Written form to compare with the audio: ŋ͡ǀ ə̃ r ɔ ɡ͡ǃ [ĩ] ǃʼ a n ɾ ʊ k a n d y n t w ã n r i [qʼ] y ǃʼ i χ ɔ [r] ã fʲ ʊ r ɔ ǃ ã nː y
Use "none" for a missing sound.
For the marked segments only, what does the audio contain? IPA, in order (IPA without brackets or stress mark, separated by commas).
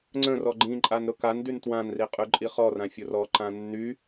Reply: ĩ, qʼ, r